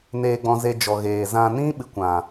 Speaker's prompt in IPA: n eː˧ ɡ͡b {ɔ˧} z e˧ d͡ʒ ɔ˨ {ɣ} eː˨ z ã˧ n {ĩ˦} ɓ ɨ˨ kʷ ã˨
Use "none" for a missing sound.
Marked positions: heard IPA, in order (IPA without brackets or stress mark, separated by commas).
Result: ɔ̃˧, ɣ, ĩ˦